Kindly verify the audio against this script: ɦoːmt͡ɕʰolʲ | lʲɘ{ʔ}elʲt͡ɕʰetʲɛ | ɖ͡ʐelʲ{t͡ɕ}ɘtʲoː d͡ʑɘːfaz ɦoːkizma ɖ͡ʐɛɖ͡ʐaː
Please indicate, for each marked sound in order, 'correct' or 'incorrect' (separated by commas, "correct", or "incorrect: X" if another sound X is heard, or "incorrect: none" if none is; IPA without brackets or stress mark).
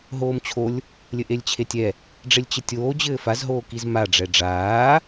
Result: correct, correct